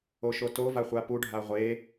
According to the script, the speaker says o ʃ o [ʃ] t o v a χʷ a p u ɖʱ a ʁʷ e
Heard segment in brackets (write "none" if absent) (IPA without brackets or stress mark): none